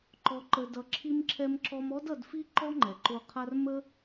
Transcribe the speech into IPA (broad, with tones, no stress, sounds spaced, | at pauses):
ǃ ɔ˧ ǃ ə˧ d ʌ˧ ǁʰ i˧ m ǁʰ ɛ˧ m ǁ ɔ˧ m ɔ˦ d ʌ˧ d f i˦ ǃ ɔ˦ ŋ͡ǃ ɛ˨ ǃ o˧ qʰ a˦ r m ə˦